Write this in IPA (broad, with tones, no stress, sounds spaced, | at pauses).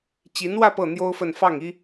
t͡ɕ i˧˥ n w ä˥˧ p ɤ˥˩ n̪ j o˥ ʊ̯ f ə˥˧ n f ɑ˥˩ ŋ i˥